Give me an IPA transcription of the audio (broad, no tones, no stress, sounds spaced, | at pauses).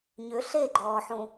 ɲ ʏ ɬ e ɡ͡ǃ ɔː ħ ũ